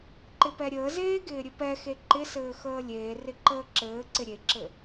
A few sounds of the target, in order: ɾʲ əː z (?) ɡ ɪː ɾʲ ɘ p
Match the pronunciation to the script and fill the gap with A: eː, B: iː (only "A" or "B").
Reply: A